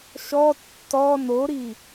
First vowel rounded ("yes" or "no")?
yes